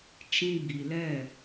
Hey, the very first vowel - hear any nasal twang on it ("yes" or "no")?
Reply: yes